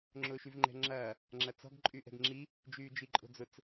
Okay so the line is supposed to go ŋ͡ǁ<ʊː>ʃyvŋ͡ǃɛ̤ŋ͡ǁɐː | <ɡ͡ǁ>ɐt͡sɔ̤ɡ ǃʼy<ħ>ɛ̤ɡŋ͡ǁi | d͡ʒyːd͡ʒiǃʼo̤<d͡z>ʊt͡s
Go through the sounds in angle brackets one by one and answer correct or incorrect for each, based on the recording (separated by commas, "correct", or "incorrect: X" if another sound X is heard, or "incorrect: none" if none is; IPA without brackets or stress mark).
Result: correct, incorrect: ŋ͡ǁ, incorrect: ʔ, correct